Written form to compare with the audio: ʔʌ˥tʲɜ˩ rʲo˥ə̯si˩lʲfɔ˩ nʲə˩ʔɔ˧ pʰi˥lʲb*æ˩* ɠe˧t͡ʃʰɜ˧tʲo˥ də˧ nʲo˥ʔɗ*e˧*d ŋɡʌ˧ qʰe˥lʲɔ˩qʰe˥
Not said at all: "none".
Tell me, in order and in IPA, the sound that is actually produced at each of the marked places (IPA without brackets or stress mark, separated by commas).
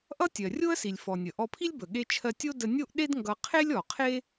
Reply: ə˩, e˥